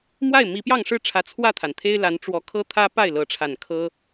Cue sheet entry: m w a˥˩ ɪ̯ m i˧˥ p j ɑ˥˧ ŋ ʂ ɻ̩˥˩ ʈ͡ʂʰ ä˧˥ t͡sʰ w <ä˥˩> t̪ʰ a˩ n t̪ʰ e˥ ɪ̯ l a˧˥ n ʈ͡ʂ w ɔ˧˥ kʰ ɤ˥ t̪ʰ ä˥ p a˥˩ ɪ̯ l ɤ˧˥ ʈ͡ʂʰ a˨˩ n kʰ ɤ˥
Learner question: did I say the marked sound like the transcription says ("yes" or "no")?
yes